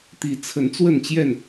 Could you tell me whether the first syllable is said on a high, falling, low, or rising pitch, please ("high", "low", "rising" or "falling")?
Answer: rising